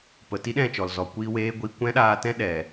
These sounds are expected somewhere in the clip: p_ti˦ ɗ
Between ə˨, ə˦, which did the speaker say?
ə˨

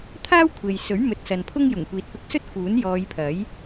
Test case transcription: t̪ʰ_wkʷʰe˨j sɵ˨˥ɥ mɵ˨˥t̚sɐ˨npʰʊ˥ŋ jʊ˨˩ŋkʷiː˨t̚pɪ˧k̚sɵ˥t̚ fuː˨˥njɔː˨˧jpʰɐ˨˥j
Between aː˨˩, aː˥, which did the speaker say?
aː˥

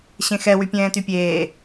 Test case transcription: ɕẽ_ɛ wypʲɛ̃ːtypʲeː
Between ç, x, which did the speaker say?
x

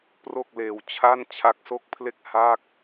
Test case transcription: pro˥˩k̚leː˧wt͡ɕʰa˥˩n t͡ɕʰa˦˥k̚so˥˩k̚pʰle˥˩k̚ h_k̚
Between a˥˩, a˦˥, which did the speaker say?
a˥˩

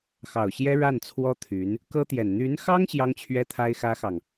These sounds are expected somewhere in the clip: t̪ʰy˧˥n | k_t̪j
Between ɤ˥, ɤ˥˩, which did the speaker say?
ɤ˥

